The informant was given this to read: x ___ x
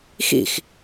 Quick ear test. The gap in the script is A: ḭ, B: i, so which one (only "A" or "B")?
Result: A